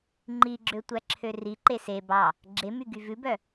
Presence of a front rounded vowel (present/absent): present